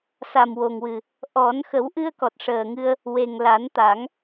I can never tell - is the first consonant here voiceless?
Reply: yes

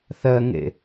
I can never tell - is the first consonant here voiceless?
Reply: yes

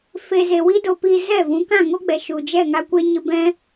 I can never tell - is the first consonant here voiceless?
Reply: yes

